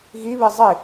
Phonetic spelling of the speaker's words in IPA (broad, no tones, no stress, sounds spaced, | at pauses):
ɣ i β i zˤ i